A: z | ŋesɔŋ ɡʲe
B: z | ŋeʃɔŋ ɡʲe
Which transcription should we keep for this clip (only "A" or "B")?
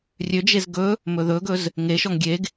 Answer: B